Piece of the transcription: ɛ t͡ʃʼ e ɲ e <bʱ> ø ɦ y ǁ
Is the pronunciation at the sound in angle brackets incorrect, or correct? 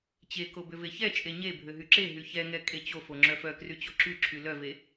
correct